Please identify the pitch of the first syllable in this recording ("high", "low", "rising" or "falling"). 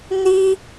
high